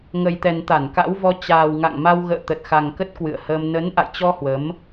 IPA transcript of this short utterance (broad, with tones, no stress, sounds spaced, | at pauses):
ŋ ə˨˩ j t̪ ɛ˨˩ n t̪ a˧˩ n k a̰˧˥ w v ɔ˧ t͡ɕ aː˨˩ w ŋ a̰˧˨ ŋ m a˧ w ɣ ə̰ː˧˨ t̪ ə˨˩ t̚ x a˨˩ ŋ k ə˦˥ t̚ k w ɨ̰˧˨ ə̯ h əː˧ m n ə˨˦ n ʔ a̰˧˨ j t͡ɕ ɔ˧ h w ə˨˦ m